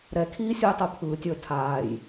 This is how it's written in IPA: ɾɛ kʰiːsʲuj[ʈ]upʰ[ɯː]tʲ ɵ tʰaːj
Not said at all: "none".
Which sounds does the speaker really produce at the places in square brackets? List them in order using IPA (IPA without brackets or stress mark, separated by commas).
tˤ, ɯː